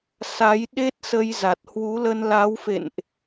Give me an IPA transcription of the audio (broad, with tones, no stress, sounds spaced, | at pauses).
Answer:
s a˨˦ j ɗ e˦˥ t̚ s ə˧ j z a˨˩ t̚ h w u˨˦ l ə˧ n l a˨˦ w f ḛ˧˨ n ʔ